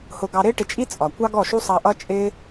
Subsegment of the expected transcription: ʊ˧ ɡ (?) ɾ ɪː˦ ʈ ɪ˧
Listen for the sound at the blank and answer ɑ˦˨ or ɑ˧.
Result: ɑ˧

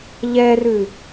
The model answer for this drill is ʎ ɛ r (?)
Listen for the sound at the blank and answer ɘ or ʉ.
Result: ʉ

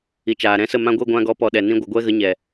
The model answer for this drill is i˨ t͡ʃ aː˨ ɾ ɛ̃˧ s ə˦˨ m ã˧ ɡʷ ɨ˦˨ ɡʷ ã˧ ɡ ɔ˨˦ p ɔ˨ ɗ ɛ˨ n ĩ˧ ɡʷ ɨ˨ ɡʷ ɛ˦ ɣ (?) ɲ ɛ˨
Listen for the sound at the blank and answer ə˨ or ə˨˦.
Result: ə˨˦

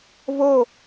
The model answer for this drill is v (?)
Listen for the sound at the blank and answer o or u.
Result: o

